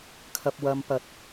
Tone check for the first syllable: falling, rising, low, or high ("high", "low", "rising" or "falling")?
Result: high